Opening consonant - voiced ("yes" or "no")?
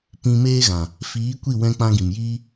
no